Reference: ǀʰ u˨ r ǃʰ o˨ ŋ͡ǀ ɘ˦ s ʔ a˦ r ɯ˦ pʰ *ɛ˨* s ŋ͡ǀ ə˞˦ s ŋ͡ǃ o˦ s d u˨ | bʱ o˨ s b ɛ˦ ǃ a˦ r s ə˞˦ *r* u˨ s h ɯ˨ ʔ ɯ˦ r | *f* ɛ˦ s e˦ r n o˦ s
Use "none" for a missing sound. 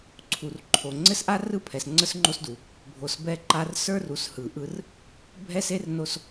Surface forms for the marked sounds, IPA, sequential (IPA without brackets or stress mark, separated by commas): ɛ˨, r, bʱ